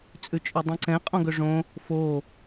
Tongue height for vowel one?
high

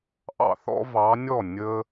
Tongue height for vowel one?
low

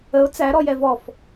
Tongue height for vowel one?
mid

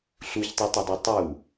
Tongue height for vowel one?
high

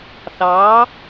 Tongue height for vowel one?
low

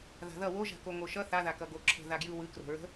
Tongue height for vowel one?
low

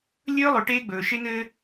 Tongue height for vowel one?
mid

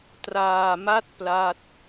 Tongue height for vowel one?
low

